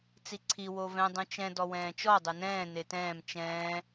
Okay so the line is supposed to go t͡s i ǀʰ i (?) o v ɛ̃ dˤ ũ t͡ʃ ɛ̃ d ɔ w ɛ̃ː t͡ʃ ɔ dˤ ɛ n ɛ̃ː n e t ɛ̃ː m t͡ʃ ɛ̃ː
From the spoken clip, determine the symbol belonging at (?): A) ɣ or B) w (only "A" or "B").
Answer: B